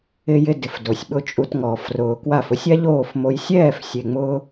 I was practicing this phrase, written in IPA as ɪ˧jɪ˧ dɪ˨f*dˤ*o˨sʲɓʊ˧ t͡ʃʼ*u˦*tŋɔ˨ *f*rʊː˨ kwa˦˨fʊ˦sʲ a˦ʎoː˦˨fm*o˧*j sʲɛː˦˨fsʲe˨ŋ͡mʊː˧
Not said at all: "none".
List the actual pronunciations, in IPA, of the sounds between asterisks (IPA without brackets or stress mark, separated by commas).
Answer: d, u˧, f, o˧